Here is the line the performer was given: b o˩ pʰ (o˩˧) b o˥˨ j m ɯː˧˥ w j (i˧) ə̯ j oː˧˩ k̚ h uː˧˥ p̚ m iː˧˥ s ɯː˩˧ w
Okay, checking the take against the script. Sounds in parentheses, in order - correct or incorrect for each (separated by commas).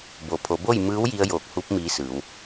correct, correct